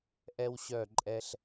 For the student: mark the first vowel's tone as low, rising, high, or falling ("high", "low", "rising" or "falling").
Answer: high